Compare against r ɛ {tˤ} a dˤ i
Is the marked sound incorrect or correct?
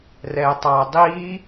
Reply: correct